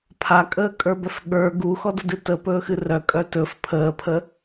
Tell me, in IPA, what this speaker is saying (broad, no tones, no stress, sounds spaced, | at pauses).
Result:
pʰ a kʼ əː kʼ ə˞ b œ f ɠ ə˞ ɡ u x ɔ d ə d ɨ t ə p ɵː x ɨ r œ kʼ œ t ɵ f pʰ əː pʰ ə